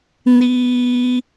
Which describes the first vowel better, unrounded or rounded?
unrounded